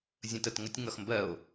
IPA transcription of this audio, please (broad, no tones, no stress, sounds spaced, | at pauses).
zʲ ə̃ t ə t ŋ ə tʲ ŋ ʌ x m b ɜ o̯